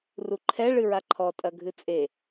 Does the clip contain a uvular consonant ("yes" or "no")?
no